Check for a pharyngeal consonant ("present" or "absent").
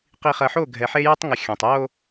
present